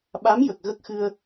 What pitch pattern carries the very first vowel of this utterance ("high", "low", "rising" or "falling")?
rising